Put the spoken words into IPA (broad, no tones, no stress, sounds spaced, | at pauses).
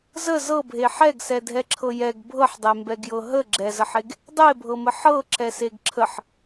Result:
z ə z ɤ bʱ e ħ ɛ ɡ s ɛ dʱ ɛ ǁʰ ɤ j ɛ ɡ bʱ ɤ ħ dˤ e m b ɛ ɡ j ɤ ɦ ə ɡ͡ǁ ɛ z ə ħ e ɡ | dˤ e bʱ ɤ m ə ħ ɤ ǁ ɛ s e ɡ ǁʰ ə ħ